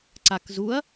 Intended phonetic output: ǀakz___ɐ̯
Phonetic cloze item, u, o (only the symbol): u